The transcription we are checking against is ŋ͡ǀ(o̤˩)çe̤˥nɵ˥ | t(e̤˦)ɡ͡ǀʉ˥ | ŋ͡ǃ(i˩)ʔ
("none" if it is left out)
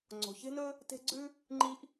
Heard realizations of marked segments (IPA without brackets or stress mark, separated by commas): o̤˩, e̤˦, i˦